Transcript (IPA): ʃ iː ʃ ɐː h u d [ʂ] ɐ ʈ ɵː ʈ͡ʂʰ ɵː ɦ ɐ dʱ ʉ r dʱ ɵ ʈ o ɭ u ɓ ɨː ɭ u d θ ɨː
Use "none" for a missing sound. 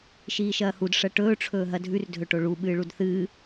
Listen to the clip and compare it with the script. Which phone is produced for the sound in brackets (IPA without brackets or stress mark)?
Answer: ʂ